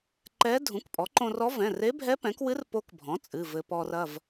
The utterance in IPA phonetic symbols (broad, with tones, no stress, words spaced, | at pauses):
ǃɛ˧˥ dʱũ˩˥kpʼɔ˩˥ǃõ˧rɔ˧˥ vɛ̃˩˧˩re˧˥ bʱɛ˧˥pɛ̃˩˥kwɨ˧˥r po˧˥kbʱɔ̃˩˥ t͡sʼɨ˩˧˩vɘ˧ pɔ˧rɐ˩˧˩v